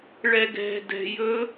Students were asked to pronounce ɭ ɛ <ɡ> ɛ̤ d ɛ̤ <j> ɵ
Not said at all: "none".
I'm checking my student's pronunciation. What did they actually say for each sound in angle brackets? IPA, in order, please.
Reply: ɡ, j

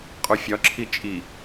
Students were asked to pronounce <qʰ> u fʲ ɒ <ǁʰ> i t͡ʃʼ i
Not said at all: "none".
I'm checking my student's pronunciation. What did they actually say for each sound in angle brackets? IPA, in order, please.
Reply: qʼ, ǁʰ

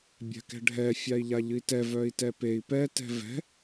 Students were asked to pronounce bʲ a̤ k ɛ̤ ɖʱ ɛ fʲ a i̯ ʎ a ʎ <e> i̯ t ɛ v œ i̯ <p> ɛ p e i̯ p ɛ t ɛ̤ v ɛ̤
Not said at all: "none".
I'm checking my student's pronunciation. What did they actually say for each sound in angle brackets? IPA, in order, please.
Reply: ɨ, t

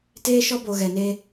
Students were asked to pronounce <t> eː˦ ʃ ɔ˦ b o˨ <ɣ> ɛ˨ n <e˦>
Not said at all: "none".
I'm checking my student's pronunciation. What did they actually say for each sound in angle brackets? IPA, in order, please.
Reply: t, ɣ, e˦

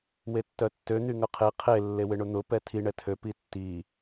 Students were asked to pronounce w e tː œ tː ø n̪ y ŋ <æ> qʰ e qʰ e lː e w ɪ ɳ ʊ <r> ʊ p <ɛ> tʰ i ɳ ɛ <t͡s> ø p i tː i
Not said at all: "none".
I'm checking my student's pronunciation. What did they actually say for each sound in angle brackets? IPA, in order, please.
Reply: œ, n̪, ɛ, tʰ

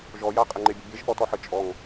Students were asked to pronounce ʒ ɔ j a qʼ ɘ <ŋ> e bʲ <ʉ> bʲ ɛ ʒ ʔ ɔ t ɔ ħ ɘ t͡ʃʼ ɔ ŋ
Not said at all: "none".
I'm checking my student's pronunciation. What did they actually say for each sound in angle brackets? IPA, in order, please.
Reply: ŋ͡ǃ, ɘ

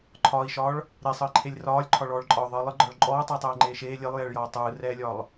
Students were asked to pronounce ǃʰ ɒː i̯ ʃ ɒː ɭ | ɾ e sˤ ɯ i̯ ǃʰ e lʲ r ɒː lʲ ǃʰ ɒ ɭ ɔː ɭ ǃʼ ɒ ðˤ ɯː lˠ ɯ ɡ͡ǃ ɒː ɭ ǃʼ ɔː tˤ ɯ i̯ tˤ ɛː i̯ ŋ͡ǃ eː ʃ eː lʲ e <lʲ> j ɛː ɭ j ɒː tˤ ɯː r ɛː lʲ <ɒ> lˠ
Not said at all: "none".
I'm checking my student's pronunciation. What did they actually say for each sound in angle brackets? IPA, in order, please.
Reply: lˠ, ɒː

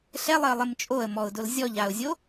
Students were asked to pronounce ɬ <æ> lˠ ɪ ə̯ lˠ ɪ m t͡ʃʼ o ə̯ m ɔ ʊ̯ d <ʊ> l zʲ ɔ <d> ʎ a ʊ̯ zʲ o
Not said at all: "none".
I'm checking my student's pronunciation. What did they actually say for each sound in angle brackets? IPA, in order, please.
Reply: ɛ, ʊ, none

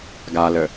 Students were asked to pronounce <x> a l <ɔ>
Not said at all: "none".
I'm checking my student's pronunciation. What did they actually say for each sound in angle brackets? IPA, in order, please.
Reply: ɡ, ə

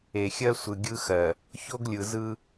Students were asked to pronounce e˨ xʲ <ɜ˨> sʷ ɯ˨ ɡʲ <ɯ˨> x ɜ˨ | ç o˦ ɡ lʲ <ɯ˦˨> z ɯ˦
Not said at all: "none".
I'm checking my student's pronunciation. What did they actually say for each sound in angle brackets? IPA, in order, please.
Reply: ɜ˦, ɯ˦, ɯ˨

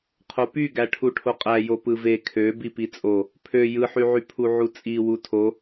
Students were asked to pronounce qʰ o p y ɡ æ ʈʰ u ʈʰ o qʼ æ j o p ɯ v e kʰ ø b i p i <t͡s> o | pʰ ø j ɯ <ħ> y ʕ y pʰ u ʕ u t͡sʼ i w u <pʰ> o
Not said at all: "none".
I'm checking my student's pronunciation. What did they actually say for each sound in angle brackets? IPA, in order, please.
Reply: t͡sʼ, ħ, tʰ

